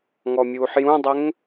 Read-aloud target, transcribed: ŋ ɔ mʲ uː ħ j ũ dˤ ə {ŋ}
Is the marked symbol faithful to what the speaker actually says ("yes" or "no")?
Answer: yes